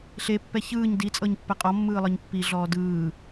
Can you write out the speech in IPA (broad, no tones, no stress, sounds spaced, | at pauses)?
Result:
ɬ e pː ɛ ç ɯː ɲ d i t͡sʼ ɤ ɲ pː ɛ qʼ ɔ mː ɯː lˠ ɤ ɲ pː i ɮ ɔː d ɯː